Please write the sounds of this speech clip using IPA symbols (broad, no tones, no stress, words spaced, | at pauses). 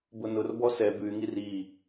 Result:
bʊnʊrbɔ sɛ bʉy̯ŋir i